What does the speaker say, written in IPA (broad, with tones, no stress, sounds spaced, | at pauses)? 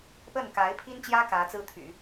p ə˥˩ n k a˧˥ ɪ̯ pʰ i˥ n t͡ɕ j ä˥ k ä˧˥ t͡s ɹ̩˥ t̪ʰ y̰˨˩˦